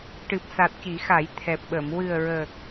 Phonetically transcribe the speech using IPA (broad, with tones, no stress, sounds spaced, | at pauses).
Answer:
ʈ ɨ˨˩ p̚ s a˨˩ t̚ c i˨˩˦ x a˨˩˦ j t̪ʰ ɛ˨˩ p̚ ɓ ə˨˩˨ m w ɨ˨˩ ə̯ ɹ əː˨˩ k̚